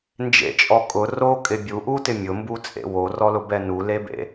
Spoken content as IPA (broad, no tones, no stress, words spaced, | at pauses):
nd͡ʒḛt͡ʃʼɔ kʼʊ rokʼɪ bʲuʔutɪ mʲʊmbut͡sʼḛ worɔlʊbɛ nulebḛ